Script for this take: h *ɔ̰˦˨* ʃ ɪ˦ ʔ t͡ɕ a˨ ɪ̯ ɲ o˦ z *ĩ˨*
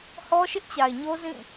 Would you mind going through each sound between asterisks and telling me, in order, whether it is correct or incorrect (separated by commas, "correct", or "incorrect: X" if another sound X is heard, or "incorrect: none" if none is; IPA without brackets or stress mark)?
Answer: incorrect: ɔ˦, incorrect: ĩ˦˨